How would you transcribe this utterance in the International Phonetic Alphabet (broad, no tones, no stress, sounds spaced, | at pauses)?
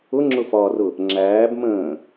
ʊ ŋ͡ǁ ʊ f ɒː r ʊ | ŋ͡ǁ æː b m ə̃ː